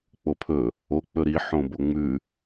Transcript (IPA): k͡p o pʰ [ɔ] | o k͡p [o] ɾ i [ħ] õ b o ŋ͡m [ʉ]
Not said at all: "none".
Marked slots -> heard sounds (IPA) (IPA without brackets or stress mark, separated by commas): ɵ, ɵ, ħ, ʉ